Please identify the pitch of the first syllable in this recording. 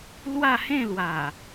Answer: falling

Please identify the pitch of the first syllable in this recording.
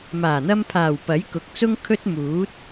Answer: low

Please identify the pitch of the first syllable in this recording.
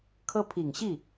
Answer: high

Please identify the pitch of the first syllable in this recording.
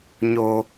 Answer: high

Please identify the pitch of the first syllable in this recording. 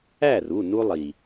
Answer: falling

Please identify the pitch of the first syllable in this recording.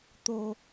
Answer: high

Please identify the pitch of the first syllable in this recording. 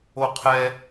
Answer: high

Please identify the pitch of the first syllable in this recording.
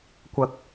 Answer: rising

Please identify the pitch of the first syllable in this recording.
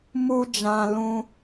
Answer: high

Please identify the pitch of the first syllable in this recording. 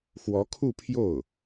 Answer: rising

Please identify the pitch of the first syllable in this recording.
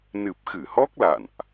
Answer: low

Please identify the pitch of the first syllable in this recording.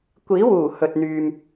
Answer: rising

